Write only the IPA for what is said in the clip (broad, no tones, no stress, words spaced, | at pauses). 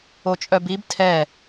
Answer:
ot͡ʃʼœbib tʰɛ